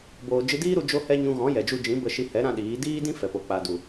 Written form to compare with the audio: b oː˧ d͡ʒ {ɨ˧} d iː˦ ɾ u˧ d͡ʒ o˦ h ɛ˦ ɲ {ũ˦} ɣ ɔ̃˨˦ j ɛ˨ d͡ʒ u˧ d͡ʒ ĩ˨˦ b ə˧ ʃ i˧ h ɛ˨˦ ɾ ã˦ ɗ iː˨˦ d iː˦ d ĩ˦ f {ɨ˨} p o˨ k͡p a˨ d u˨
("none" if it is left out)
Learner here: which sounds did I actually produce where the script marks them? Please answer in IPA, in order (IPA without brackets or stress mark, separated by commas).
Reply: ɨ˧, ũ˧, ɛ˨